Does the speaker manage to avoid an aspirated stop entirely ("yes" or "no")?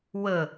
yes